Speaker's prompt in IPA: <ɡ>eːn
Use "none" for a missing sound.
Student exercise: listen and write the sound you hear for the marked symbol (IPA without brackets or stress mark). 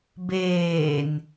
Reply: b